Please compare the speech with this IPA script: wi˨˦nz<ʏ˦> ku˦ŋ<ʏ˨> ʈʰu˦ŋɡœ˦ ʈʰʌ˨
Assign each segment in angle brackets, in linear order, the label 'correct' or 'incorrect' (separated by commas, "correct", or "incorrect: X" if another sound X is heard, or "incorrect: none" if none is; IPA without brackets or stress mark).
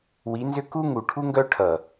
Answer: correct, incorrect: u˨